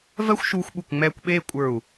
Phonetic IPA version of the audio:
vɜ˥xʷʃuː˧xʷɓu˧˩k ŋ͡mɛː˧kʷɓeː˥˧kʷʼə˞˧˩u̯

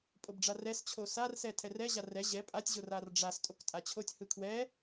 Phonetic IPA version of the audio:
pʼobɖ͡ʐarɛs t͡ɕʰosarsɛ tʰɛrɛ ʑarɛ ʑɛ pʼatʲʑo rarɖ͡ʐas tʼoktʼat͡ɕʰotʲ hɯkʰwɛ

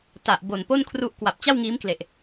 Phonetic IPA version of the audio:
ta˨˩ʔ bo˨˩npo˥˩nkʰru˦˥ʔ kwa˨˩p̚t͡ɕa˥˩wŋiː˦˥mkle˨˩ʔ

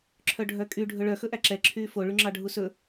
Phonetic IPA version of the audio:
ǁʰœɖʱœkʼy ɖʱɵɭœ xɵʔæǁɛ ǁʰyːfo ɭyŋ͡ǁɑɖʱusɵ

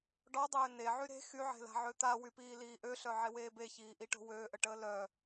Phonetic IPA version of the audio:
ɖɔdˤøː neʕy ɾe̤ xyʕe̤la̤ʕø t̪awypiːliː ʔøɬœʕeweː beçiːʔiʈo̤ wøːʔəʈəː lœ

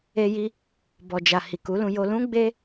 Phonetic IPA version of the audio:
e˧ji˧ | bɔ˨d͡ʒa˨ hi˨ku˨˦lũ˧ jo˧lũ˦ ɡ͡be˦

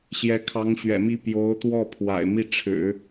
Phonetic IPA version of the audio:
ɕjɛ˧˥kʰɑ˧˥ŋɕɥɛ̰˨˩mi˥˩ pjo˧˥ʊ̯t̪wɔ˥˩ pʰwa̰˨˩ɪ̯mi˥˩ʈ͡ʂʰɻ̩˨˩˦

